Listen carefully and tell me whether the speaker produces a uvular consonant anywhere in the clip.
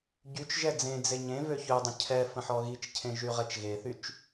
yes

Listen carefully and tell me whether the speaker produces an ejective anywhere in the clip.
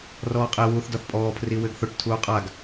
yes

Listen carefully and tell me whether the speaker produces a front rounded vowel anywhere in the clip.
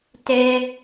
no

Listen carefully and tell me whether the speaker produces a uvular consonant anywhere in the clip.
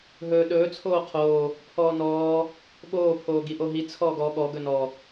yes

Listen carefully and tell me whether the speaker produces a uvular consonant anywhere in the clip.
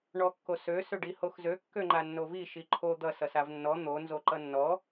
no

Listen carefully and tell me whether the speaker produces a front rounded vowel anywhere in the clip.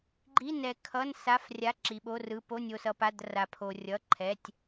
no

